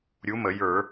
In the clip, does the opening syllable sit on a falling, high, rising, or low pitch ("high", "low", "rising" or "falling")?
rising